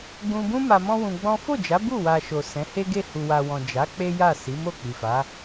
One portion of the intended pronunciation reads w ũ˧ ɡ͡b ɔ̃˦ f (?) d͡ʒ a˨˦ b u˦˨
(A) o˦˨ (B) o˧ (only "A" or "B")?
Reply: A